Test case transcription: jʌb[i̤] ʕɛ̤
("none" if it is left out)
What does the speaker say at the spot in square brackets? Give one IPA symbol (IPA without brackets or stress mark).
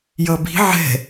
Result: i̤